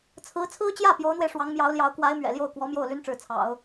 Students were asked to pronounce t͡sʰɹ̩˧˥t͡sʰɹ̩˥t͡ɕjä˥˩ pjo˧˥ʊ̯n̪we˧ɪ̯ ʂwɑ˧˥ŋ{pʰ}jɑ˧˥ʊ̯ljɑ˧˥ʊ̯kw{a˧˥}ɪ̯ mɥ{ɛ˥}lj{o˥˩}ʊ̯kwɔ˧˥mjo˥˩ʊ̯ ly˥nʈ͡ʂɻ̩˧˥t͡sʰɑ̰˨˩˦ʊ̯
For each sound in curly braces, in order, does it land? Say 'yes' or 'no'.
no, yes, no, yes

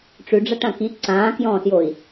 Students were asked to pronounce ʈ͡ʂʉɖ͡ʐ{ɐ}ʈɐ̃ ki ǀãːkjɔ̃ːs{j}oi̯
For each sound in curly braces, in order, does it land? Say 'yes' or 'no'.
yes, yes

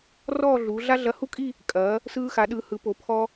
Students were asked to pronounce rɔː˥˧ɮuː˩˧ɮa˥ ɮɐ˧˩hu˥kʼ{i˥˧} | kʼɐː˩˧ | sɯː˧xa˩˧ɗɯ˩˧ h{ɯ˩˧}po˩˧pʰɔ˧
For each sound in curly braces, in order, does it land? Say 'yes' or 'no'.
yes, yes

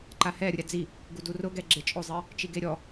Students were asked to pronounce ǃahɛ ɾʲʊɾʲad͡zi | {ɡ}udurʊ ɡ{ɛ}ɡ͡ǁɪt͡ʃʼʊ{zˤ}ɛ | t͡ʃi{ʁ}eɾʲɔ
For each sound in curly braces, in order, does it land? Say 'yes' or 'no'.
yes, yes, yes, no

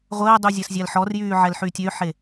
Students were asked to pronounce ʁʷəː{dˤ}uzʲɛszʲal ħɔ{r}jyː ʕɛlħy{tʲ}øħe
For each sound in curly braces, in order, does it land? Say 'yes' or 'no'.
yes, yes, yes

